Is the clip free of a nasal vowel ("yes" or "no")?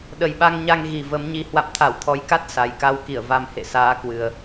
yes